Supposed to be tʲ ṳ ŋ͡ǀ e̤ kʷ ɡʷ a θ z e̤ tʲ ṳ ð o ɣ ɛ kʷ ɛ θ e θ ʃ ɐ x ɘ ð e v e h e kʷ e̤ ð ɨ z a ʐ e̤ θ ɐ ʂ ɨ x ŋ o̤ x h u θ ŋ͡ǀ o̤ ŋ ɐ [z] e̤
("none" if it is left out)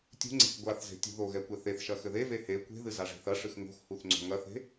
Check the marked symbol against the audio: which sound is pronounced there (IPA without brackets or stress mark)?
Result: θ